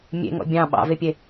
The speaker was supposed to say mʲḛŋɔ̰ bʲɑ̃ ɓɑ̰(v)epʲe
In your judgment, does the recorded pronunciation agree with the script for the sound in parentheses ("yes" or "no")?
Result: yes